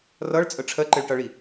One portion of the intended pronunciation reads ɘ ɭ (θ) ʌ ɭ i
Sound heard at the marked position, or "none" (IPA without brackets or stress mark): ʈ